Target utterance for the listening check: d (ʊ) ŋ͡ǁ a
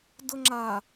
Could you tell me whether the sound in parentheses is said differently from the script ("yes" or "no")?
no